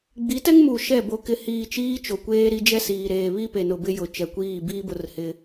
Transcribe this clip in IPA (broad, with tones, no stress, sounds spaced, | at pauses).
ɡ͡b i˨˦ t ɛ˦ ŋ m u˨ ʃ ɛ˦˨ b o˨ k ɪ˨ h iː˨ t͡ʃ iː˦ t͡ʃ o˨ kʷ eː˦ ɾ i˦ d͡ʒ ɛ˦ s iː˨ ɾ eː˨ β i˦ p e˨ n ʊ˨ b ɪ˦ j ʊ˨ t͡ʃ ɛ˨ kʷ iː˦˨ b iː˦ b ʊ˦ r h ɪ˦